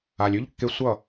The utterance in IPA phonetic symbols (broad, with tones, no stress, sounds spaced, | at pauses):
a˨ lʲ ʉ˦ ʎ kː e˧ sʷ ʌ˦˨